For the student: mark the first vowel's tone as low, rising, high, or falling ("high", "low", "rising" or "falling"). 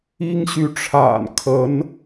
high